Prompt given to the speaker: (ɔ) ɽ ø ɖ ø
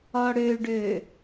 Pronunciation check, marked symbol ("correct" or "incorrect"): correct